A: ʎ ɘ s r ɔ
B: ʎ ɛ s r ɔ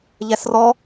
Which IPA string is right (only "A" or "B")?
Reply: B